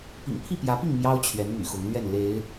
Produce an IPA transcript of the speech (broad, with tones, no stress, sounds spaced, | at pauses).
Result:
p ḭ˨˩ ŋ pʰ i˥˨ p j ä˨˦ p i˥˨ ŋ m j ɑ˦ ʊ̯ t͡ɕʰ ɥ ɛ˨˦ n m y̰˨˩ x ʊ˨˦ ŋ l ɥ ɛ˥˨ n l e˨˦ ɪ̯